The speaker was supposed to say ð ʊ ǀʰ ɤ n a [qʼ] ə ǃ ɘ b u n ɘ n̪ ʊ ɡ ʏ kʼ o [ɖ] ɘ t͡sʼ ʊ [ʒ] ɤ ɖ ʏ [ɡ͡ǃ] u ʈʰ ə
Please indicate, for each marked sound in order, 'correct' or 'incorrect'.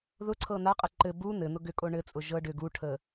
correct, incorrect, correct, incorrect

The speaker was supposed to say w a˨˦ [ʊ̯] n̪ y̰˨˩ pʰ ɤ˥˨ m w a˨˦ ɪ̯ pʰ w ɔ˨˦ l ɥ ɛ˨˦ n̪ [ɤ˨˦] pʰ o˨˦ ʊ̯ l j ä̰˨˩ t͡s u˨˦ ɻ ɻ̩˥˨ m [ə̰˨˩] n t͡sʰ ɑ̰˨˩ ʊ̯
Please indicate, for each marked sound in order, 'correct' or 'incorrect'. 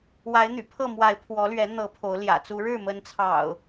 incorrect, correct, incorrect

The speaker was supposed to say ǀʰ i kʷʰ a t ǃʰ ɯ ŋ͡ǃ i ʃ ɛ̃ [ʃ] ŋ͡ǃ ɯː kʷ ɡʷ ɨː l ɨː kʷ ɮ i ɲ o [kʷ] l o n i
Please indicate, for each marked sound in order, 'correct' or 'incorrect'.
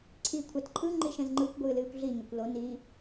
incorrect, correct

